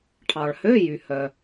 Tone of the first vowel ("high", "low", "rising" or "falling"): low